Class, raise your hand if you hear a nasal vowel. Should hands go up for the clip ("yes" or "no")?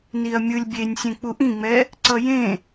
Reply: yes